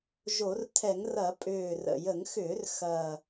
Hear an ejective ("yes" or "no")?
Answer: yes